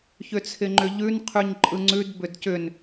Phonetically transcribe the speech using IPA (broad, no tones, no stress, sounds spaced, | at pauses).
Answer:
ç ʏ t͡sʰ ɪ ŋ͡ǃ ʏ ʎ ʉ n qʰ ʉ ɲ ǃʼ ɯ ŋ͡ǀ ʉ d b ʏ d c ʏ n